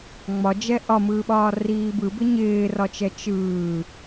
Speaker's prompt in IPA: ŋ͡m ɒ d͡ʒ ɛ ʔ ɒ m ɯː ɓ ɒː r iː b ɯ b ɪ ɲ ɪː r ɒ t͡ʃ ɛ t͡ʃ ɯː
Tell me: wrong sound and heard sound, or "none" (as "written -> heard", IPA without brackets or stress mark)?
none